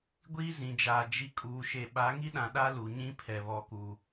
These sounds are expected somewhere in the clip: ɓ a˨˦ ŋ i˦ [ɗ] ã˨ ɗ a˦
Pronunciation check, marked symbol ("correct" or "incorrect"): correct